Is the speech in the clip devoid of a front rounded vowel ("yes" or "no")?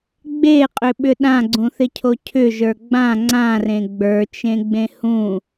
no